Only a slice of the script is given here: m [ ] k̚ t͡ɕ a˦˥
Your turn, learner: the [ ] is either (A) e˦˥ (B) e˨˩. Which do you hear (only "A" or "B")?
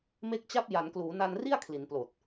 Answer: A